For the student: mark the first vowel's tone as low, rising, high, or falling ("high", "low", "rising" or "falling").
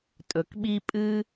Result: low